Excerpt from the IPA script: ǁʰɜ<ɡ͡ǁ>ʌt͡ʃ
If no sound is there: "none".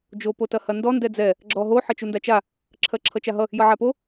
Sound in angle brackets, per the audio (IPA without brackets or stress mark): ǁʰ